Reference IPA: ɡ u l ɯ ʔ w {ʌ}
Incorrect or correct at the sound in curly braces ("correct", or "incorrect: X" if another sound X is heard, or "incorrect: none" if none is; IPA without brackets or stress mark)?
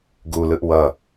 correct